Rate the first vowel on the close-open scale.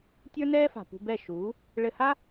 mid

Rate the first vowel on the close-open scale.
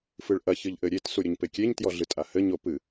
close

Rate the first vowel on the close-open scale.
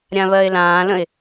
open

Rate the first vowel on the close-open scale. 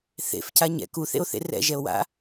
mid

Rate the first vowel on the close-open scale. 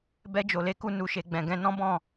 mid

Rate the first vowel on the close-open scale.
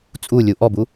close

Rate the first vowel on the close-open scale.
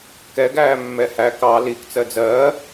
mid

